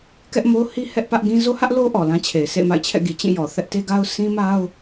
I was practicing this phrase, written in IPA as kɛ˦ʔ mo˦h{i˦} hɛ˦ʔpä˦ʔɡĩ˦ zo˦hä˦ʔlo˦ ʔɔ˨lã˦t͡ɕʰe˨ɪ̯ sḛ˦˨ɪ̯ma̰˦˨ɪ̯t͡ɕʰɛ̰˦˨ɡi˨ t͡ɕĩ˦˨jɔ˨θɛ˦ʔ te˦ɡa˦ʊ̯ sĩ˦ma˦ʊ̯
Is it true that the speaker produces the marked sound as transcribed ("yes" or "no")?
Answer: yes